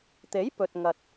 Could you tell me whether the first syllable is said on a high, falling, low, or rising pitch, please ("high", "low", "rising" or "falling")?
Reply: rising